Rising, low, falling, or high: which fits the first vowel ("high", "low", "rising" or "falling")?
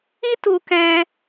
high